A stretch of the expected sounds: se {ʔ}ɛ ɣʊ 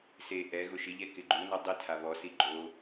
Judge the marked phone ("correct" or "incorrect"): correct